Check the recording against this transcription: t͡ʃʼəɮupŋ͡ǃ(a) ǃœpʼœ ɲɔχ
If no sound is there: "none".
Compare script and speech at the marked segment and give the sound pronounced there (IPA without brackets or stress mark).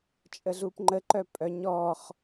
ə